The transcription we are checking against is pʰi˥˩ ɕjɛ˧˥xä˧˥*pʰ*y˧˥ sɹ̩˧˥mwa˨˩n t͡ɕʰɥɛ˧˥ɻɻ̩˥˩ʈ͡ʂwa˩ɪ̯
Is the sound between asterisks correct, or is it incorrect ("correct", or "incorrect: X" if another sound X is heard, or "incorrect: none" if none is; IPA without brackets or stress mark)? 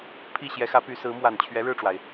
incorrect: p